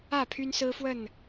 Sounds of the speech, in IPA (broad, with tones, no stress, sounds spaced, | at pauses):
ä˥˨ pʰ y˦ n s ɹ̩˦ f w ə˥˨ n